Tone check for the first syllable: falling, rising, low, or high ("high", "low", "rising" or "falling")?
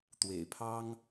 low